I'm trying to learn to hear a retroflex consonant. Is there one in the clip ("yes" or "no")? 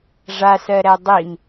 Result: yes